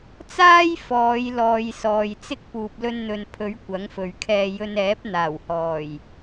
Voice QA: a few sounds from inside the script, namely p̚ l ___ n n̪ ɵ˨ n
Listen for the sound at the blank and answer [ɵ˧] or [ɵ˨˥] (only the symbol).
ɵ˧